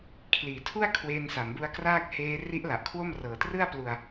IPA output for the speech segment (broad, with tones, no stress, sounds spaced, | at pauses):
kʰ l iː˩˦ tʰ u˥˩ a̯ kʰ w eː˧ n s a˩˦ m b u˦˥ a̯ k r aː˥˩ k̚ h eː˦˥ r i˦˥ ʔ l a˨˩ ʔ kʰ w o˥˩ m r ɤː˨˩ t r ɯ˥˩ a̯ p l u˧ a̯